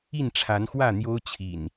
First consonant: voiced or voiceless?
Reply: voiced